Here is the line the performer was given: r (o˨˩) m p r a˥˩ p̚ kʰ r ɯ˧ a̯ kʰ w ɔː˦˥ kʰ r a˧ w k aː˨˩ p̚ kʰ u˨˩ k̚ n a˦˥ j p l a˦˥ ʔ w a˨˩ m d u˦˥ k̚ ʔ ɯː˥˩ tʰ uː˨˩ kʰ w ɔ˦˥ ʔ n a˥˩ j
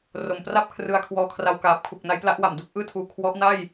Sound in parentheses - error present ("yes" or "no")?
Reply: no